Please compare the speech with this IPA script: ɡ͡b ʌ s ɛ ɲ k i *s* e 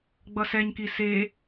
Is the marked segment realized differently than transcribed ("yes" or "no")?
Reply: no